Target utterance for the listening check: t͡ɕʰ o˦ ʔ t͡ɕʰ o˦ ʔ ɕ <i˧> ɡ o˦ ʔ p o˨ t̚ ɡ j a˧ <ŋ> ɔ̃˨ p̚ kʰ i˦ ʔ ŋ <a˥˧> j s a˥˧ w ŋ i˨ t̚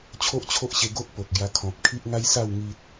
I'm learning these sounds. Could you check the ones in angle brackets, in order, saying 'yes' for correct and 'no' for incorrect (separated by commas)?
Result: no, no, no